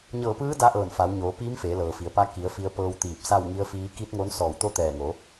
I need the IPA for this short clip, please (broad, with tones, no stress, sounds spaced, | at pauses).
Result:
ɲ ɤː˧˩ p ɯː˧˥ d a˧˥ ʔ ɤː˧˩ n f a˩˧ w ɲ oː˩˧ p iː˧˥ m f eː˩˧ l ɤː˩ f i˩ ə̯ p a˧ k i˩˧ ə̯ f i˧ ə̯ p ɤː˧ w t̪ iː˧˩ p̚ s a˥˨ w ŋ i˧˥ ə̯ f iː˧˥ k i˧˥ t̚ ŋ oː˧˥ n s ɔː˧˩ w t̪ o˥˨ t̪ ɛː˧˩ ŋ o˩˧